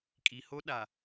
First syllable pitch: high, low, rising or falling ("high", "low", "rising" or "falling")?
low